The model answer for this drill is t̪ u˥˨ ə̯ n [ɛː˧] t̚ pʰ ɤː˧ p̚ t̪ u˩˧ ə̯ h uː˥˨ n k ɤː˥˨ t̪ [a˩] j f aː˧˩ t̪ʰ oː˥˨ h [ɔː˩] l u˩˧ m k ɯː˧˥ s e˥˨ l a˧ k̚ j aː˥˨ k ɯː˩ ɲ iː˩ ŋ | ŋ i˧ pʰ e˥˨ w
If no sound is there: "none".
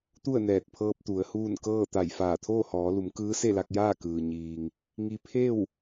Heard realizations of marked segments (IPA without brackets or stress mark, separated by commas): ɛː˧˩, a˧˩, ɔː˩˧